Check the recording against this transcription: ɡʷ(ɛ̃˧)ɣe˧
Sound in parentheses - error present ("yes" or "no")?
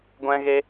no